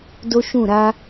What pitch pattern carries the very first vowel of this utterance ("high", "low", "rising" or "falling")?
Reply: high